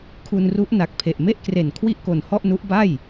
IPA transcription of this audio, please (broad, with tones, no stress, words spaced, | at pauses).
kʰu˧nru˦˥ʔ na˨˩k̚pʰe˨˩ʔ me˥˩ʔkre˨˩n kʰwi˥˩ʔko˨˩n hɔ˥˩ʔnu˦˥ʔba˥˩j